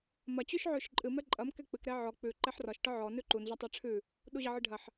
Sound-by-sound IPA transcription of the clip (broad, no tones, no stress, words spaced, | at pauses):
mɐ t͡ɕʉʃʕʉʃǃʼɨ mɛǃʼɐm kɛk͡pɨk ɾɛʕɔ k͡pʉ ǃɛħrɒʃ ʈɒʕɔ nʉǃun ʑɒtˤɛʈ͡ʂʰʉ | ɗuʑɐʕɨɖʱɐħ